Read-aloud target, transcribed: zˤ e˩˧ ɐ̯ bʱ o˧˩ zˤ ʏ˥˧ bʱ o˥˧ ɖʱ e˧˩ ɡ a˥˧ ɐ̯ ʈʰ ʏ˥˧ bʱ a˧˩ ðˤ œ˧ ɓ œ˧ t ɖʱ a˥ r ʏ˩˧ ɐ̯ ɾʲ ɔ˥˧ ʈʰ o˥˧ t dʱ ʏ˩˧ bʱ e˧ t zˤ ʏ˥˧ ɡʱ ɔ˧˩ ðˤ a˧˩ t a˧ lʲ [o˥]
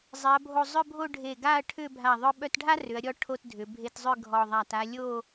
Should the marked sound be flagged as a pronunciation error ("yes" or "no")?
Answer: yes